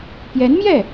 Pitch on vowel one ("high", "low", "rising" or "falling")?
rising